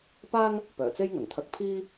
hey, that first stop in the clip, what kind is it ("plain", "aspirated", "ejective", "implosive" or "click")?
plain